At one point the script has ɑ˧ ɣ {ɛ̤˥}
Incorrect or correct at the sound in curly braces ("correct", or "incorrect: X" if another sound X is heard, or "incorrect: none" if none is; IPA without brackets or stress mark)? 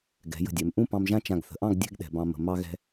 incorrect: ɛ̤˧